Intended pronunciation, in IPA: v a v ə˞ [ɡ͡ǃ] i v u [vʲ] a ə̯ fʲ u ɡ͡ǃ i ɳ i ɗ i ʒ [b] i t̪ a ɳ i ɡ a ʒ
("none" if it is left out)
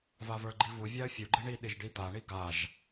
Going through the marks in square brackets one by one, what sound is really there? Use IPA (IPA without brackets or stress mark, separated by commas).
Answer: ɡ͡ǃ, vʲ, ɖ